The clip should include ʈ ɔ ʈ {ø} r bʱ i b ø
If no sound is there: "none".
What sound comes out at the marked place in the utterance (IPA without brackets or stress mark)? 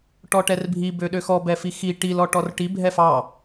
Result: ɛ